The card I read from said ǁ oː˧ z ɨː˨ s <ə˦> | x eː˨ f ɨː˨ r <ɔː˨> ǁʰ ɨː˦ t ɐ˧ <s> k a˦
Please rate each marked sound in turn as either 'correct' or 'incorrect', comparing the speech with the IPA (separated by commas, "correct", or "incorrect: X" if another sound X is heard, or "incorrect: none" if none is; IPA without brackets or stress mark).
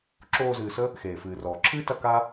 correct, correct, incorrect: none